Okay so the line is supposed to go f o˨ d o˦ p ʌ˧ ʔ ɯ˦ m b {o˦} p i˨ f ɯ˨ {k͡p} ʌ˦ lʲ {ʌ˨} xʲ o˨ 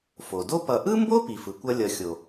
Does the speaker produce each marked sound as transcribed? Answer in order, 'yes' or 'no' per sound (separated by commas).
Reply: yes, no, yes